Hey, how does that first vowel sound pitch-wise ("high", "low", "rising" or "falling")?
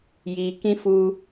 low